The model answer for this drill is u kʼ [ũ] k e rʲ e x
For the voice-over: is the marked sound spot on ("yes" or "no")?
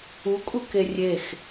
no